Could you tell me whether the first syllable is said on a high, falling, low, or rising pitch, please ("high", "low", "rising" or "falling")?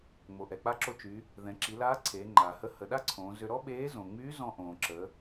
low